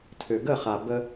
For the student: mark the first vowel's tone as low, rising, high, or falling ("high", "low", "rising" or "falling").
low